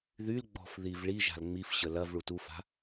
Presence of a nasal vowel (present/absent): absent